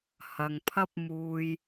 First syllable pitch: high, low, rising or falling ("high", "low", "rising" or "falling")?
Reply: low